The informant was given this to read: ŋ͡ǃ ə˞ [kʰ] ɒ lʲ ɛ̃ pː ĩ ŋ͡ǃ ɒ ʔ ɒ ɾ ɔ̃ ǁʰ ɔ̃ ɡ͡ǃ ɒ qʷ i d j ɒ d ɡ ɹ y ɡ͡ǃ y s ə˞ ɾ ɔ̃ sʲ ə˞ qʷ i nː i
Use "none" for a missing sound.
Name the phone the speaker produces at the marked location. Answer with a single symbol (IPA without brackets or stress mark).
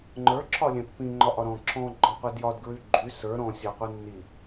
ǁʰ